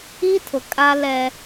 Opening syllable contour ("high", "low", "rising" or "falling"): high